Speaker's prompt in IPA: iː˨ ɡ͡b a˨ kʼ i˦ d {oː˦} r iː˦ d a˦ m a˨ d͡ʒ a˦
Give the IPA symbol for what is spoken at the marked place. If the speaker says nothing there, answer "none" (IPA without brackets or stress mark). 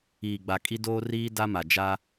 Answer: oː˦